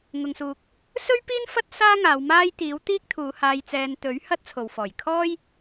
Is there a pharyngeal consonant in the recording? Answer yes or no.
no